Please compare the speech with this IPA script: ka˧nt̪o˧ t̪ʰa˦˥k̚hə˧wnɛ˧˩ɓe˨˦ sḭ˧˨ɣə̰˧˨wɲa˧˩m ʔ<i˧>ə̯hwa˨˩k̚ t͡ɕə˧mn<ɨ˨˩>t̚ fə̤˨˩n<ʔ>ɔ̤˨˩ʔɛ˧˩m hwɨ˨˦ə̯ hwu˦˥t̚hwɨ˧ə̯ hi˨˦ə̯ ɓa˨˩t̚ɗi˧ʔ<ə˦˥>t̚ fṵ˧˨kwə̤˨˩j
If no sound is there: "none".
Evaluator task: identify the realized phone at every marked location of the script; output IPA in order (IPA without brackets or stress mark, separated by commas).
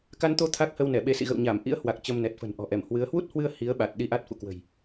ḭ˧˥, ɛ˨˩, ʔ, a˦˥